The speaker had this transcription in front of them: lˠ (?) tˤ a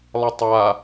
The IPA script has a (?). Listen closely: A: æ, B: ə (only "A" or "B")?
B